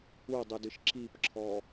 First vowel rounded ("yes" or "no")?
yes